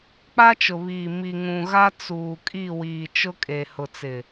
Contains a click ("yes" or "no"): no